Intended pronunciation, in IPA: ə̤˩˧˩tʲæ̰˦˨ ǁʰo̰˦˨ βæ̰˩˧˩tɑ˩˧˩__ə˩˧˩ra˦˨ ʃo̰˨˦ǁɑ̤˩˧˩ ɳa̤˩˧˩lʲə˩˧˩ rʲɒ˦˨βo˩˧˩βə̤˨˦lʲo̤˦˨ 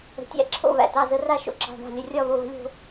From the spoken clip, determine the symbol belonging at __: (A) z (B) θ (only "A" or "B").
A